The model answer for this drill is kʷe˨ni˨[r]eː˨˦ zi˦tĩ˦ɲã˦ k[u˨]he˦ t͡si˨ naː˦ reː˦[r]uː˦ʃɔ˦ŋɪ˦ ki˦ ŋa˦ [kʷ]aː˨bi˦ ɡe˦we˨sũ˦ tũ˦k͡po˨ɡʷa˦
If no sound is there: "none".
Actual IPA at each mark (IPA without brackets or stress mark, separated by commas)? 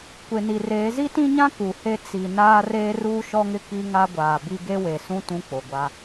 r, u˨, r, ɡʷ